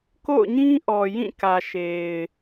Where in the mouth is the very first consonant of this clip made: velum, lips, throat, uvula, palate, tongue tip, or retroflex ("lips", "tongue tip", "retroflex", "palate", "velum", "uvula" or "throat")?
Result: velum